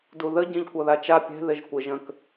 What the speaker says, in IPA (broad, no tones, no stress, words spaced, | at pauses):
duðə ɟɛ̃ʎkʷʌðat͡ʃa pʲɛ̤ ðɪʒkʷɪʒ ə̃k